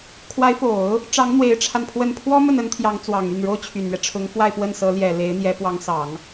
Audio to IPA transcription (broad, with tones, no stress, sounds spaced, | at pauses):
kʰ w a˧˥ ɪ̯ f o˨˩˦ ʊ̯ | ʈ͡ʂ ɑ˧˥ ŋ n̪ w e˧˥ ɪ̯ ʈ͡ʂʰ a˧ n pʰ w ə˥˩ n pʰ w ɔ˥ m ə˥˩ n ə˥ n t̪ʰ j ɑ˧˥ ŋ t͡s w ɑ˨˩ ŋ y˥˩ n ɻ o˥ ʊ̯ t͡ɕʰ y˨˩ n ɥ ɛ˦ ʈ͡ʂʰ ʊ˧˥ ŋ f w a˥˧ ɪ̯ p w ə˥˩ n s ɤ˧˥ l j ɛ˨˩ l e˧˥ ɪ̯ n̪ j ɛ˧˥ p w ɑ˧˥ ŋ s ɑ˨˩˦ ŋ